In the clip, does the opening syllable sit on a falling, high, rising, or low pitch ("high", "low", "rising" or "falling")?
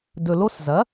low